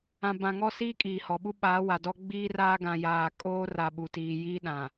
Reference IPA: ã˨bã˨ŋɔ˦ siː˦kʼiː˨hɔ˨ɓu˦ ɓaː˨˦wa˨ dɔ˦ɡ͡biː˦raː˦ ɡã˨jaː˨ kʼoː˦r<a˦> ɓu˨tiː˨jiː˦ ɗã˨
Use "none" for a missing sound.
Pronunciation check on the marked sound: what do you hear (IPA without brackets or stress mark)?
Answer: a˨